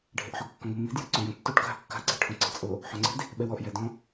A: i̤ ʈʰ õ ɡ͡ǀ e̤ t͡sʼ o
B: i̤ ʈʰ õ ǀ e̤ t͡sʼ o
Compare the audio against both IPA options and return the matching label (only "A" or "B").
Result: B